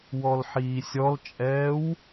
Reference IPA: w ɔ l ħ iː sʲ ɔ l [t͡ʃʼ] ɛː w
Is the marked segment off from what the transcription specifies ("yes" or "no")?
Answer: no